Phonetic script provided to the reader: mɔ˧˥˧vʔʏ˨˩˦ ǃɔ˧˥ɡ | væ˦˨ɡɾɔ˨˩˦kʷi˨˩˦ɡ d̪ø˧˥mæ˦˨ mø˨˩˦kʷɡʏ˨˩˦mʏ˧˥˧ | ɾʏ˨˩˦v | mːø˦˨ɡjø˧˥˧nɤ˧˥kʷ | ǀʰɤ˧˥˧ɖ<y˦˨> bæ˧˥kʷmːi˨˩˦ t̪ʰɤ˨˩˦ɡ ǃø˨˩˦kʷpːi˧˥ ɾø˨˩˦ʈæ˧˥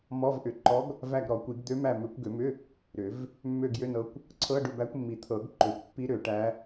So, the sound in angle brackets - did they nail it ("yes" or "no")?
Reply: no